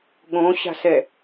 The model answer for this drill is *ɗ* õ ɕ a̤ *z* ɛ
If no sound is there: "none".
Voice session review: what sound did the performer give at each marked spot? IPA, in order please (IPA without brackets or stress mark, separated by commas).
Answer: ɠ, s